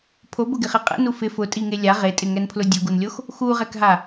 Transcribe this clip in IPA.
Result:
pʰobʊɡɪχe qʼɛ̰nu fɪ fʊtʼiŋe lʲa ʁetʼɪŋɛnpʰlʊ dʲʊɡunlʲox | xuʁɛkɦa

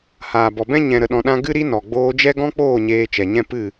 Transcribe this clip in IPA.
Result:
haː˨bɔ˨bɛ̃˦ ɲɛ̃˨ɾə˨ɗɔ̃˨ɗã˧ ɡɨ˦ɾi˦nɔ˨ ɡ͡boː˧d͡ʒɛ˦ɡɔ̃˦k͡poː˦˨ ɲeː˧t͡ʃɛ˨ɲɛ̃˦ pɨ˦˨

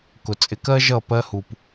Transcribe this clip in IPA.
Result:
kʊ˨t͡sʼɪ˧kɜ˦ ʒʌ˦˨ pɜ˧hu˨p

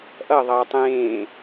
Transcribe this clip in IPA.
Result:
ʔʌ ðˤʌːtˤẽː

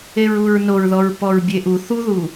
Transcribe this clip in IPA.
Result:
eɹuɹnoɹðɔɹ pɔɹbʲeʔu θuðu

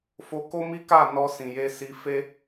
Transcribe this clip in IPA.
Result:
fo˧ko˦mi˦ka˦˨ nɔ˧ sĩ˨je˧ si˧ fe˦

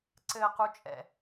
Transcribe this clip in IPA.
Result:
ǀɘː˨qu˨ t͡ʃʼɛ̰˨

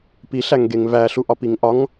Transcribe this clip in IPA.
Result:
piɬæŋɡeŋ væɬuʔɒpiŋ ʔɒŋ

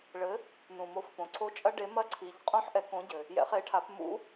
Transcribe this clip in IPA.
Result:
ɭɘ˩˥ | nũ˩mo˩˥fpõ˩ǀʰo˧˥ t͡ʃʼɐ˧˥ɖe˩˥mɐ˧˥ǀʰi˩˧ʎ qʼõ˧˥ħʔɛ˩˥ kõ˩˥ɟɘ˩ | jɛ̰˩˥χe˩˥ ʈʰa˩˥pmṵ˧˥

